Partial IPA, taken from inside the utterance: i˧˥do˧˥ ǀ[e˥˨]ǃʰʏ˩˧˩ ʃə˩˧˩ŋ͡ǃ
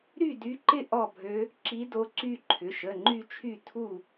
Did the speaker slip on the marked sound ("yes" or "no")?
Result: yes